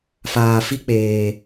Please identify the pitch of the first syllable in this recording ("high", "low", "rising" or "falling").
low